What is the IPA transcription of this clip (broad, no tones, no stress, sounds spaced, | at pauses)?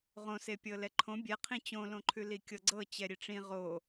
ʁ õ s e pʲ ɤ l ɛ ǃʰ õ bʲ ɛ qʰ ĩ t͡ɕ õ l õ ǃʰ ʉ l i kʲ ɤ ɡ͡ǀ ɤ t͡ɕ ɛ ɾʲ e ʈ͡ʂ ĩ ʁ o